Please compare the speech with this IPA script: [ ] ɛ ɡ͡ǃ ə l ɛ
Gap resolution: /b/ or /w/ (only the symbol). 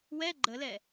w